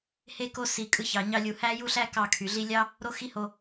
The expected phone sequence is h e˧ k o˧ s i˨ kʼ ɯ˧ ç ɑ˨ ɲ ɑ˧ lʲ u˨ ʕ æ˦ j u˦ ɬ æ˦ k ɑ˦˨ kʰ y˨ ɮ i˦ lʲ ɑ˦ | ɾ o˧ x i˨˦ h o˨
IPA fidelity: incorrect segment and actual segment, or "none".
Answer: ʕ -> h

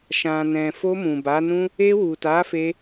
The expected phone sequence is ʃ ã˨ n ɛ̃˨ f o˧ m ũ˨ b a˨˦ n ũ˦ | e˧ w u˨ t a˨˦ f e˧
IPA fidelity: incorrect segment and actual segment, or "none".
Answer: none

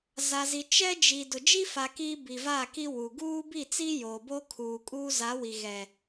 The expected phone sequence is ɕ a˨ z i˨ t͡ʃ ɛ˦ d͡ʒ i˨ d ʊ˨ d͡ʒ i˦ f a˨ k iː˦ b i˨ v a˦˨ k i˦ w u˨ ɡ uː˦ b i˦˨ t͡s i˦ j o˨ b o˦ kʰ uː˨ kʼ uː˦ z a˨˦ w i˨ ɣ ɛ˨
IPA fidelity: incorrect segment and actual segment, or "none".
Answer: ɕ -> z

